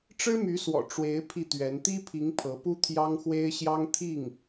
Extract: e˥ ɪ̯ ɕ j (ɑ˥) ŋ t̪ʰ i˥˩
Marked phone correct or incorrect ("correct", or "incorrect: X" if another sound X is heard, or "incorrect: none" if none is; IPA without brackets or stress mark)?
correct